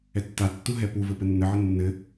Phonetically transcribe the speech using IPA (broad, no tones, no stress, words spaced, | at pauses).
ɛtːatːu ɦɛpuvɘ pɘnːɘʕɘ nːɘ